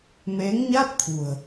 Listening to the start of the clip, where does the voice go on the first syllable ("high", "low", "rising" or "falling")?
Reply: rising